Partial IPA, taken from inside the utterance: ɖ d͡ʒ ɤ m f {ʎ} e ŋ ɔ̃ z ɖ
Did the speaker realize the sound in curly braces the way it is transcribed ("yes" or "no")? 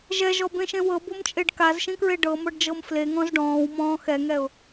no